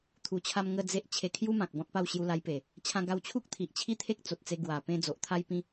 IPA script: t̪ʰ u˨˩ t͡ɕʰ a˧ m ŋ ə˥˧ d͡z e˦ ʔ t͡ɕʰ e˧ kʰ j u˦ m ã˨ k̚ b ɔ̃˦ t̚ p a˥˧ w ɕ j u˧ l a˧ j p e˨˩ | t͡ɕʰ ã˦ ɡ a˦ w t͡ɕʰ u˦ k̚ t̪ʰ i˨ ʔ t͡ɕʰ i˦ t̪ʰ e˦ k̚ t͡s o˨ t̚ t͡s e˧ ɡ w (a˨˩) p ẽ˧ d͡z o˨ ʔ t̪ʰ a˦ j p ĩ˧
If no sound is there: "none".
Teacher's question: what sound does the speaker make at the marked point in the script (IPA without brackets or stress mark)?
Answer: a˨˩